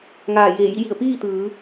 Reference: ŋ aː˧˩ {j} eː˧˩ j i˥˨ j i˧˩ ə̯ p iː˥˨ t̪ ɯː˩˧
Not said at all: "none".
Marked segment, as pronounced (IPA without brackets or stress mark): j